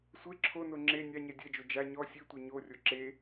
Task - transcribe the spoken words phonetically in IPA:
sʷe ǁʰono ŋ͡ǁe nʲaɲɛ dʲɛd͡ʒo d͡ʒa ɲɔ sʲetʷɛ ɲorʲo ǁe

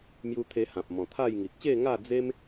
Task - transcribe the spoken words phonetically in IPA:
mju˧t̪ʰe˧hã˨p̚ mɔ̃˨˩t̪ʰa˥˧jŋi˨k̚ ɕe˥˧ŋa˥˧d͡ze˦m

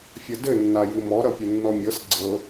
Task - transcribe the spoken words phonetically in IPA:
fʲʌdɘ nːajɨmɔ ɾʌpʲɨnːɔmʲɤs ɡ͡ǀɤ

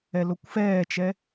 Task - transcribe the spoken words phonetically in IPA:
ɛlokʷfɛːt͡ʃɛ

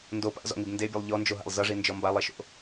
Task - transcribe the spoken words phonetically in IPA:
ndo pa̰zɔ̰ŋib ndebʲʌlˠ ʎɔnd͡ʒoɦa̰lˠ zʌʐind͡ʒɔ mbalˠeʃo̰

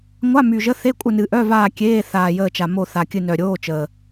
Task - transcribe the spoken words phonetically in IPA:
ŋʷa˧˥˧my˨˩ʒə˧˥˧ θe˧˥˧kʷʼə˦˨nɨ˨˩ ʔœ˧˥˧vaː˦˨ kʲeː˧˥˧ θaː˨˩jəː˦˨t͡ʃa˨˩mo˦˨ θa˨˩kʲɨ˦˨nœ˨˩ ɾʲoː˧˥˧t͡ʃəː˨˩

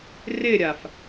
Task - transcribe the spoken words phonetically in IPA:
rɪɾʲaf

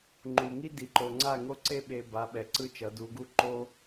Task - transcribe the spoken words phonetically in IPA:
ŋ͡ǃu˨ ŋi˦ di˨ǃo˨ ŋ͡ǀa˦˨ŋo˦ǀe˦ ɓe˨ ba˨˦ɓɛ˨ ǀɯ˦t͡ʃʌ˨˦du˨˦ɡu˦ ǃo˦

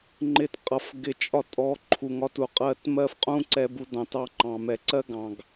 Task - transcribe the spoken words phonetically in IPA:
ŋ͡ǃɪ˧tqʼʌ˨f ɡɪ˧t͡ʃʼɒ˦ tʼɔ˨˦ ǃʰu˨ŋɒ˦tu˨qʼɜ˦˨t mɜ˦fqʼũ˦ǀɛ˧ bu˧dɑ̃˨tɑ˧ŋ͡ǃɑ̃˨ mɛ˨ǀɜ˦ɡɑ̃˨ɡ

